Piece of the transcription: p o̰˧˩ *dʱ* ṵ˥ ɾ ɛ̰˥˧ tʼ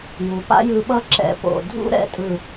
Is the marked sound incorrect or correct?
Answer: correct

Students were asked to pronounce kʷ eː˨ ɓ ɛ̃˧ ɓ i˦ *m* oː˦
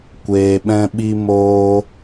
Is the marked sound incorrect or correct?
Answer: correct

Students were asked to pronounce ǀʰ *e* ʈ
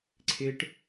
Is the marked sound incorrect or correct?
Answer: correct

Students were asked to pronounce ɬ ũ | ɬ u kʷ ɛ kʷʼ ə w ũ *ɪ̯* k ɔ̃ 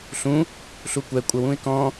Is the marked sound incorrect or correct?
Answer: correct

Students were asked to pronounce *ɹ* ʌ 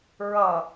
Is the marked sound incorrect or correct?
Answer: correct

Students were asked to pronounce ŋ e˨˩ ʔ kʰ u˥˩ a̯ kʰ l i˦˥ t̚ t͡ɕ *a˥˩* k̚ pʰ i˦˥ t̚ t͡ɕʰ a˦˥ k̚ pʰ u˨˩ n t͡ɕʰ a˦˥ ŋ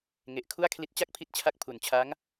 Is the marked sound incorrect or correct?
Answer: correct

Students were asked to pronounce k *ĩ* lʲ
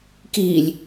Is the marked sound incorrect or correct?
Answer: incorrect: i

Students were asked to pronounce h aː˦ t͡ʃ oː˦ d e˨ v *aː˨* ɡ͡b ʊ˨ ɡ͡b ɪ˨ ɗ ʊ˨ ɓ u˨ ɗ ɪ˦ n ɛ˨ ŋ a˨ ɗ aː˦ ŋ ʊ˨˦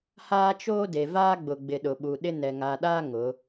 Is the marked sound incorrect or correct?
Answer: incorrect: aː˦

